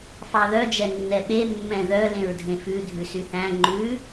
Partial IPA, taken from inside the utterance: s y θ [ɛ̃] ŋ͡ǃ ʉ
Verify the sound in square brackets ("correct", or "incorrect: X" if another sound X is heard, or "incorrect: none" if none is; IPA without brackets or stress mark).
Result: incorrect: æ̃